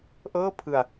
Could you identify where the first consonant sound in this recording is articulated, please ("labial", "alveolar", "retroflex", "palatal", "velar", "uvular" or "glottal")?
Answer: glottal